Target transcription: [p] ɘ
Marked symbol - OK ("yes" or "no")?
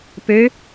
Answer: yes